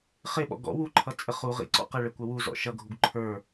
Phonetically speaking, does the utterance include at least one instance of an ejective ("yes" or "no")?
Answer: yes